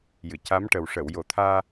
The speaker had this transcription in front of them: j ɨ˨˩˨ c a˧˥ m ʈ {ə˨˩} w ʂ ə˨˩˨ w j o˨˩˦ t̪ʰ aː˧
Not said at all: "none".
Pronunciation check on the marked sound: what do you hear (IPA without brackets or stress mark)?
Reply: ə˨˩